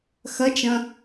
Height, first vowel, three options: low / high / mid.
low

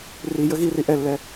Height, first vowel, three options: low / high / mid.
high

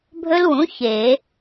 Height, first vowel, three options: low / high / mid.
mid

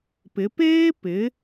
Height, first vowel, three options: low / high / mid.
high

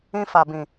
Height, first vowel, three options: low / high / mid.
high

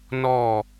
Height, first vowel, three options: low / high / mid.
mid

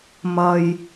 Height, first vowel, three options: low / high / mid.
low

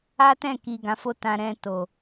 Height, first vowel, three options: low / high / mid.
low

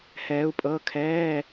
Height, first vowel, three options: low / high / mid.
mid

